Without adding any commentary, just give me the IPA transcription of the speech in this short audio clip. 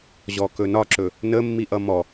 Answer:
ʑɔkɵnɒǁɵ | nəmːiʔʌ mɔ

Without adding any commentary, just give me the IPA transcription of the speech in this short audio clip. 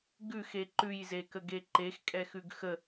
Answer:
ɡʉxe ǃʉjzekəɡe ǃexkʼɛxʉɡ xə

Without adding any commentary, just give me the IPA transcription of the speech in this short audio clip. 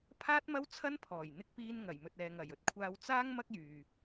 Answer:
pʰaː˥t̚mɐ˥w t͡sʰɐ˥npʰɔː˨˩jn̪ɪ˧k̚piː˧n ŋɐ˨˩jmɵ˨t̚ ɛː˨ŋɐ˨˩jɵ˥t̚kʷʰaː˧w t͡saː˥ŋ mɐ˥k̚jyː˨

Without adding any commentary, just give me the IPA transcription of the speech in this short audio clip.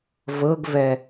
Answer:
vɤɡvɛ

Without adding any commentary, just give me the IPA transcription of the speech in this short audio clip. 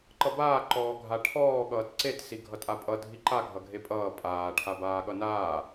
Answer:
ǃʌbaː ǃɔːɡʱaʈʰɔː ɠʌːtǀet siɡʱʌtʼapʼʌ dʱiǃa ɡʱʌɡʱepʼʌː pʼaː ʈʰabaːɠʌnaː

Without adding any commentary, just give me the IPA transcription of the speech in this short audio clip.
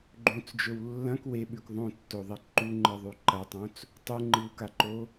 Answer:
ɡ͡ǃũt͡sd͡ʒɵw lːɐ̃k weɓʉk ðˤõtːoðˤi ǃuŋ͡ǃɨðˤʉ ǃɐtˤõt͡s | tˤʉŋ͡ǃɨwkaǃo

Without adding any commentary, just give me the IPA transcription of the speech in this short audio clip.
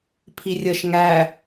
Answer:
pʰirʲəʃ ŋæ

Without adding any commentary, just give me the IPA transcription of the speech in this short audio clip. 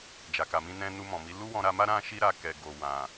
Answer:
d͡ʒa˨ka˨mĩ˧nɛ̃˧ nu˧mɔ̃˨mi˨˦ lu˦wɔ̃˧ɾa˧ma˦ ɾã˦ʃi˦ ɾa˧kɛ˨ɡo˨ wã˨

